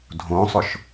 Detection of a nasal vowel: present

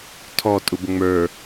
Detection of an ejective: present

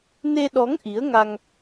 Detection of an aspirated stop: absent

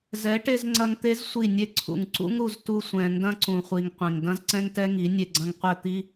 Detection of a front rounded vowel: absent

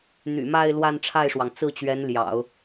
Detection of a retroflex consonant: present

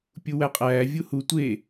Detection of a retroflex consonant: absent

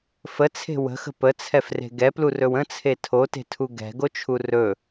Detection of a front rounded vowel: absent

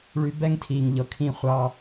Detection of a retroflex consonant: present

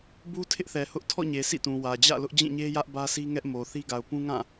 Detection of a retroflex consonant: absent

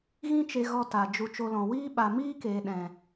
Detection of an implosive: present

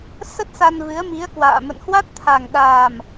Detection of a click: absent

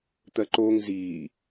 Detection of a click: present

